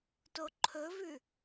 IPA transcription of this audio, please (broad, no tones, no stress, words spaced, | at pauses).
toǃʰɵvʉ